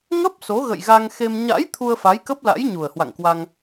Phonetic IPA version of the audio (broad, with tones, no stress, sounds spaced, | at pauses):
ŋ ə˦˥ p̚ s o˨˦ ɣ ə̰˧˨ j ɣ a˧ ŋ x e˧ m ɲ a̰˧˥ j t̪ʰ u˧ ə̯ f a˨˦ j k ə˦˥ p̚ l a̰˧˥ j ɲ u˨˩ ə̯ h w a̰˧˨ ŋ k w a˧ ŋ